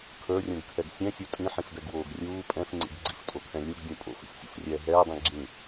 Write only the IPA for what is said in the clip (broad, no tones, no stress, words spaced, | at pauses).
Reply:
kʰə˞rʲũɡkʰɛɡ sʲɛ̃sʲu tʼĩħĩfdɛɡwoːɡ rʲuː pʼɛ̃fŋ͡ǀḭɡ ɡ͡ǀiftʼokʰɛ̃ lʲuɡdʲũ pʼo̰fḭfsʲṵfrʲɛː ɦɛːdˤĩ ɡ͡ǁĩ